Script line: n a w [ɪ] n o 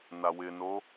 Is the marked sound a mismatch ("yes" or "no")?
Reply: no